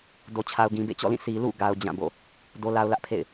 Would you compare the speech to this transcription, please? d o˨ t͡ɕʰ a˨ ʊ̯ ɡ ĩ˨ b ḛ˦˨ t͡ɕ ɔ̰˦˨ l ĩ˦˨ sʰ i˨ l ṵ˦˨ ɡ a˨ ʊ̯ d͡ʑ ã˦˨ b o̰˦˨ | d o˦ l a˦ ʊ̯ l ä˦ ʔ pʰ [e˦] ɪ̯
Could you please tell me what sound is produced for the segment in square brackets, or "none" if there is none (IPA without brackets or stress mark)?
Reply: ḛ˦˨